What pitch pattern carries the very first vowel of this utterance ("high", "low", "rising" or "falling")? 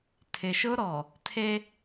low